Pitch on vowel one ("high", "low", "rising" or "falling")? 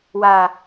low